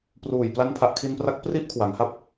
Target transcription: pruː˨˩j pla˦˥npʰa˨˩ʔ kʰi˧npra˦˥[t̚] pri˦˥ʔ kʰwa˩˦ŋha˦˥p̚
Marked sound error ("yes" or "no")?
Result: yes